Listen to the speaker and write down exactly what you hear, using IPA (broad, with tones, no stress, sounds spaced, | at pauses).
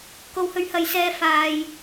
k o˨˧ w h ɵ˨˧ ɥ h ɐ˨ j s ɛː˧ f aː˨ j